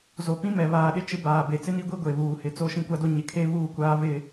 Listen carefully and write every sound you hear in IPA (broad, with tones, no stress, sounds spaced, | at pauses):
z o˨ p ĩ˦ m ɛ˨ β aː˨ ɗ ɪ˦ t͡ʃ ɪ˦ b aː˨ b e˨ t͡s ɪ˦ n i˦ ɡʷ i˦ ɡʷ e˨ β uː˨ h ɪ˨˦ t͡s o˦ ʃ ĩ˦ kʷ a˦ d o˦ ɲ ɪ˨ kʰ e˦ β uː˦ kʷ aː˦ β ɪ˦˨